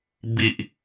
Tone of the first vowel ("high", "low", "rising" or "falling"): low